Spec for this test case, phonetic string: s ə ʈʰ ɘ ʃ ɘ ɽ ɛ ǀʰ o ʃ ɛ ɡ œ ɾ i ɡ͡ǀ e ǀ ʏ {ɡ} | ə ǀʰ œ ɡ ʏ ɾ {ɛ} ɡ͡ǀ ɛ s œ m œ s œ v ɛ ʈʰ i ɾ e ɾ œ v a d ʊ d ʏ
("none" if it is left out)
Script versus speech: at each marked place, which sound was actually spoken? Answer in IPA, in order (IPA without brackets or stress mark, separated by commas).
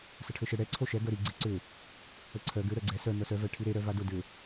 none, œ